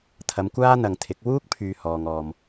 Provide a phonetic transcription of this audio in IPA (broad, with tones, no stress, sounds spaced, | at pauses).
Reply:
t̪ʰ ɐ˨˧ m kʷ aː˥ n̪ ɐ˨ ŋ t̪ʰ ɪ˨˥ k̚ w uː˥ k̚ pʰ yː˨ h ɔː˨ ŋ ɔː˨ m